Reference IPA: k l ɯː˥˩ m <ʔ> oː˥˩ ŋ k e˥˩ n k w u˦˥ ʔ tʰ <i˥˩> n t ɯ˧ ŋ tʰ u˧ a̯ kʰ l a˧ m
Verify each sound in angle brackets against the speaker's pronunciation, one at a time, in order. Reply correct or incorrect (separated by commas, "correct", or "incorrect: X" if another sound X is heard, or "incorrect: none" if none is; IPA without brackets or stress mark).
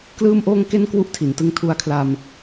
correct, incorrect: i˩˦